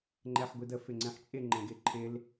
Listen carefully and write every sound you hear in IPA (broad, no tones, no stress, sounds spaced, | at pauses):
ŋ͡ǃ ɛ ħ ɡʷ i d ə f ɪ ŋ͡ǀ ɛ̃ ħ t͡ʃʼ ɪ ŋ͡ǃ ɛ̃ ɡ ɪ ǃʰ ɪ l